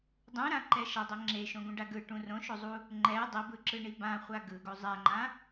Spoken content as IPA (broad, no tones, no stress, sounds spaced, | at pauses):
dˤ ũ ɾ ã ǃ ɛ ʃ ʌ dˤ ɛ ŋ͡ǁ e ʃ õ ɡ ũ ɖ a ɡ ɯ ʈ ũ r õ ʃ o zˤ u | ŋ͡ǃ ɛ dˤ e b ɯ ǁ ɯ ɳ i b ã χʷ a ɡ ɯ ɡ o zˤ ɛ ŋ͡ǃ ã